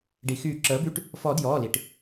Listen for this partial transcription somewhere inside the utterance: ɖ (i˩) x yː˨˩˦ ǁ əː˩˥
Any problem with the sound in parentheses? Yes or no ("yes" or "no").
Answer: no